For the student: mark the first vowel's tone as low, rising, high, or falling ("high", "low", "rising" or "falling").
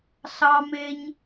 high